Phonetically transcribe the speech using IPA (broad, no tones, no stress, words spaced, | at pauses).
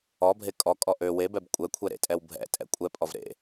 ɔbʱe kʼɔkʼɔ ʔø webɛb kʷʼɛ kʷʰɛɾḛtʼɛw bʱɛ̰ tʼɛ̰kʷʼɛpʼɔv ɾḛ